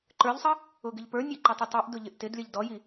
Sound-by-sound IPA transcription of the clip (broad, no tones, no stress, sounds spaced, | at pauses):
ǃ ə˞ ʎ sˤ ʌ | ʊ ɡ ɪ ʎ p ə˞ nʲ æ ǃ ʊ tˤ ə tˤ i ʔ d ʊ ʎ ɪ ʔ t ɪ d lʲ ʌ ʎ d ɔ j i